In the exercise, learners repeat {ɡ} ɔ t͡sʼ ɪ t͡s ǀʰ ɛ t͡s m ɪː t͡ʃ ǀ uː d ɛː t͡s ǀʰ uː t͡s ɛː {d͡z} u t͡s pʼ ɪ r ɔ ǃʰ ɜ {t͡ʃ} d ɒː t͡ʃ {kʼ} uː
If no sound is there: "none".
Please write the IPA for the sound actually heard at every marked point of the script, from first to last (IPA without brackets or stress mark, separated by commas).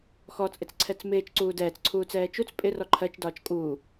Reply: x, t͡ʃ, t͡ʃ, kʼ